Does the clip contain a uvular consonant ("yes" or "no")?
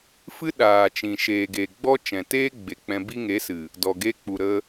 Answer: no